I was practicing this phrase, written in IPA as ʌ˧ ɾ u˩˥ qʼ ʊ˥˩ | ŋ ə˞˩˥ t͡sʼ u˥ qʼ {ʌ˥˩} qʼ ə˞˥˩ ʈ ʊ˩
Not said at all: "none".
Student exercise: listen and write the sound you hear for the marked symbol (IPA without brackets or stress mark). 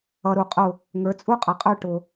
ʌ˩